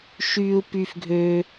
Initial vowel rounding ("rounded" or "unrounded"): rounded